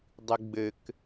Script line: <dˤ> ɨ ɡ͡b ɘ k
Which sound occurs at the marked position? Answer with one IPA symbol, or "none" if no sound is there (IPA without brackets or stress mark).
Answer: dˤ